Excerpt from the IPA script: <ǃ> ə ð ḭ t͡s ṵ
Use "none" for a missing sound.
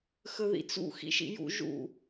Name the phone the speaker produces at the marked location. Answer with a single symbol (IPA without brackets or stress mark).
x